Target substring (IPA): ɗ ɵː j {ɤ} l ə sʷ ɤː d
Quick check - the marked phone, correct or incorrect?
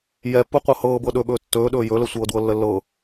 incorrect